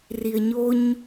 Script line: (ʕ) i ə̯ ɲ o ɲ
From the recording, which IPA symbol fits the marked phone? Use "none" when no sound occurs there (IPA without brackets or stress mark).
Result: r